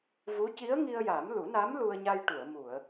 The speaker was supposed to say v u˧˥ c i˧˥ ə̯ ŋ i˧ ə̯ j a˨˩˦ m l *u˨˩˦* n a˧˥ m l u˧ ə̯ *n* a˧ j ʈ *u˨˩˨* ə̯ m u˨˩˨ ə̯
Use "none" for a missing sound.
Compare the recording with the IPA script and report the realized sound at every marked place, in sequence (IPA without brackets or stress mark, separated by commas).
u˨˩˦, ɲ, u˨˩˨